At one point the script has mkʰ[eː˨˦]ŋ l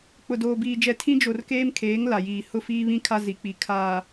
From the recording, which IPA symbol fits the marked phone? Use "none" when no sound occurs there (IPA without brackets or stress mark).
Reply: eː˨˦